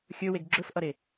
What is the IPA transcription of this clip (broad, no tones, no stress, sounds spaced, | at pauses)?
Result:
xʲ ɵ w e ɡ ɡ͡ǁ ɵ f ʔ ʌ ɾ e